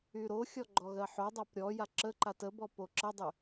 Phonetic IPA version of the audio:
y ɾ o xʲ ɔ ɡ͡ǃ ɔ ɣ ɜ ħ o dˤ a p ɾʲ ɔ j a ǁ ə ǃ a t ə b ɔ p o ǁ ə dˤ y

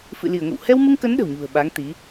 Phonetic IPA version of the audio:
f ɨ̰˧˨ l i˧˩ ə̯ ŋ ə̰˧˨ w h ɛ˧ w m ɨ˧ ŋ k ə˨˦ n ɗ ə̤˨˩ w ɲ ṳ˨˩ ə̯ ɓ a˨˦ ŋ t̪ i˨˦

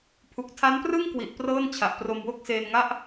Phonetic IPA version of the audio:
pʰ u˨˩ k̚ tʰ a˦˥ n p r ɯ˥˩ ŋ k w i˨˩ ʔ p r ɤː˥˩ n t͡ɕʰ a˨˩ ʔ p r o˧ m w o˥˩ k̚ s eː˧ n ŋ a˥˩ ʔ

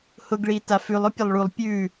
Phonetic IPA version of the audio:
h ʊ ɡ ɭ i t a f ʉ lˠ ʊ pʲ ɐ lˠ ɭ u lˠ pʲ ʉ

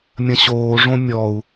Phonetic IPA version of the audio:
mʲ ɐ̃ ɕ oː ʐ õ mʲ ɔ u̯

